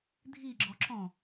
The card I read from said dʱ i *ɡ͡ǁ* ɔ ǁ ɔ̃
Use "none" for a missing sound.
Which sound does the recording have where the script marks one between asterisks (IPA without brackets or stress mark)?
ɡ͡ǁ